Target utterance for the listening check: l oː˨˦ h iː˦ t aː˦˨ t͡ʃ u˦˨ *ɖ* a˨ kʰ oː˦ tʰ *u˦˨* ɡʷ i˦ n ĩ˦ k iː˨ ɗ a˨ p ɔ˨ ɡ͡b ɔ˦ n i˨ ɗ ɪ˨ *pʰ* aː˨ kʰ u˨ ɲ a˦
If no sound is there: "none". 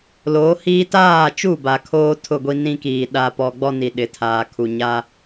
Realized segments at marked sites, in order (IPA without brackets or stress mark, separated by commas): b, ʊ˦˨, tʰ